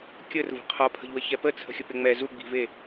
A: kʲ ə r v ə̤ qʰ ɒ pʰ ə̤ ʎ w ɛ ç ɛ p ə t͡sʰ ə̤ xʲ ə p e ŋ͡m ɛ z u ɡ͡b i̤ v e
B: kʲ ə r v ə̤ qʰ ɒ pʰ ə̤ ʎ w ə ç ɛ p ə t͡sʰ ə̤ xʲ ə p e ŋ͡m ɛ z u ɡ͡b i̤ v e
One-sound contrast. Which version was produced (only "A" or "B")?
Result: B